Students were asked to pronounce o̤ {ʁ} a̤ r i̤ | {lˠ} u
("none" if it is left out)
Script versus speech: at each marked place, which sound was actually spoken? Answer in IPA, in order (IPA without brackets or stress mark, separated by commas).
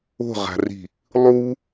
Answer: ʁ, lˠ